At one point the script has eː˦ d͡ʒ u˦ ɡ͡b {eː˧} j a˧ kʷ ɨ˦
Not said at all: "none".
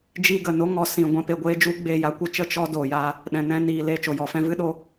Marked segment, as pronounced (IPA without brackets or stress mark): eː˧